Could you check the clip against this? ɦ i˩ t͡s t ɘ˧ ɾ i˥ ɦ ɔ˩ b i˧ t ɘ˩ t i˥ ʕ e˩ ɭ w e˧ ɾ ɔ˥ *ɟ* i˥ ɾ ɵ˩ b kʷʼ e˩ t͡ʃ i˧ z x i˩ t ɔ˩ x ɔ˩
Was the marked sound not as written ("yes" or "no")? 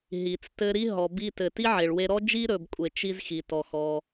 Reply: yes